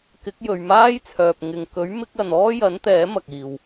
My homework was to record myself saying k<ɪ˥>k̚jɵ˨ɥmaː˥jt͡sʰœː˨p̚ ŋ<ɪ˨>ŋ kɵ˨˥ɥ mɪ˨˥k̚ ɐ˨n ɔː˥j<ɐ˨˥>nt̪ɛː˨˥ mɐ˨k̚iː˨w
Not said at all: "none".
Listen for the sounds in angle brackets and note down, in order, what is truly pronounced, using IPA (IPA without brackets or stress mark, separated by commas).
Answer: ɪ˨˥, ɪ˨, ɐ˨˥